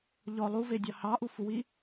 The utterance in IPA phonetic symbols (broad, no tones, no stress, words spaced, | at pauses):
ʎɔ lˠuvedʲɑ hɑʔufuwi